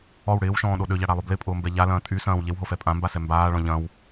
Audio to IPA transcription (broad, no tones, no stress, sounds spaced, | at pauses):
ɔ w ɽ ɪː w ʃ ɔ̃ː ɗ o ɗ ø ʎ a ɽ a lˠ ø b l ɪ pʼ ʊː m b ɛ ʎ a l ɐ̃ː tʼ y s ɐ̃ː w ʎ e w ɦ o f ɛ pʼ ã m b a s ɛ m b aː ɭ ɔ̃ ʎ ɐ̃ w